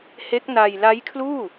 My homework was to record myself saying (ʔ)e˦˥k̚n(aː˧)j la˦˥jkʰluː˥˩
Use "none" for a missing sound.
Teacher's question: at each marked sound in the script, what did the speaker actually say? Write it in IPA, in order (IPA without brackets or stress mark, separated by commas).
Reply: h, a˧